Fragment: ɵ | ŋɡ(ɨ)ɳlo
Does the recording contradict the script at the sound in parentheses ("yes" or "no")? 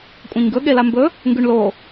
yes